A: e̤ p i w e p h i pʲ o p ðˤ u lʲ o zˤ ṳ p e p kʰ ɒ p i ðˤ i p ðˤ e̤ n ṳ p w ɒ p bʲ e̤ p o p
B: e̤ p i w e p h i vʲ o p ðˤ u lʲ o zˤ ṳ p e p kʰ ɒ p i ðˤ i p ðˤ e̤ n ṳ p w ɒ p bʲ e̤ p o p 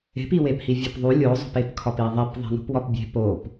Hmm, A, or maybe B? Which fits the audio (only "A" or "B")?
B